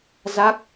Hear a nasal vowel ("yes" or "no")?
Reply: no